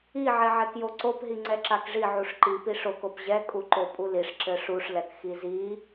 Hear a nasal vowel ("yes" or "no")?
no